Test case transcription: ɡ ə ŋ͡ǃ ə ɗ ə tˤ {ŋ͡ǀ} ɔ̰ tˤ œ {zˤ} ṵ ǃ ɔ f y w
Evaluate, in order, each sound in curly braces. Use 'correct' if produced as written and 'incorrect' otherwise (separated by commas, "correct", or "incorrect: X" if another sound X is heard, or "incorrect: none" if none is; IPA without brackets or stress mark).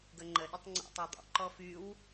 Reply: correct, incorrect: dˤ